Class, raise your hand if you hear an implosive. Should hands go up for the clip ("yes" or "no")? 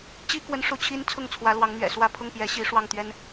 no